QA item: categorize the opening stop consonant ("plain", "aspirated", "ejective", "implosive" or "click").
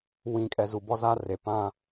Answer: ejective